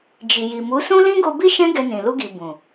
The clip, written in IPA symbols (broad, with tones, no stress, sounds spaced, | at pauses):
d͡ʒ i˨ j i˨ m u˨˦ s ũ˦ l ĩ˦ ɡ o˧ b i˦ ʃ ɛ̃˦ ɡ ɛ˧ n ĩ˨ l u˧ ɡ i˨ b ũ˨